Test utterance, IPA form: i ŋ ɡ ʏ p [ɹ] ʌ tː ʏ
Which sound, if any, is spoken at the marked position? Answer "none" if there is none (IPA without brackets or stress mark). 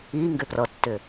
r